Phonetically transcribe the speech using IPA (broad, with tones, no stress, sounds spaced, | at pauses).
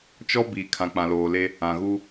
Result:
t͡ʃ ɔ˦ b i˨ kʰ ã˨ k͡p ã˨ l oː˨ l e˦ | ã˨ ɣ u˦